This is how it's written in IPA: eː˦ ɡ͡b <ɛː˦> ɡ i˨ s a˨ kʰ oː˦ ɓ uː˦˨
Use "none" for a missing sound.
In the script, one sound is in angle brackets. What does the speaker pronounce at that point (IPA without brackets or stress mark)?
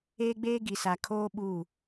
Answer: eː˦